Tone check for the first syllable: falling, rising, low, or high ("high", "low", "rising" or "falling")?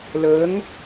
rising